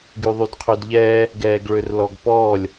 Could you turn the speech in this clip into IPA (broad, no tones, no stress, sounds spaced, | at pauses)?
ɡ y ðˤ y d qʰ ø d ʎ ɛː | ɡ ɛː ɡ ɭ ø r l ɔ ɡ p ɔː lʲ